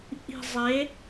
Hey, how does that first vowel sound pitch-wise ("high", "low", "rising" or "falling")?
low